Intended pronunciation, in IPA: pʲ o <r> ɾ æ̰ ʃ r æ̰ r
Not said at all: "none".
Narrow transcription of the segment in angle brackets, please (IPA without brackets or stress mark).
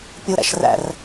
none